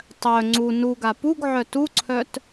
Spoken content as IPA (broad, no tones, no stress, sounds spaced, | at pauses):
tˤ œ ŋ͡ǀ u n u ɡ a p u ɡ ʕ œ t u ǀʰ œ t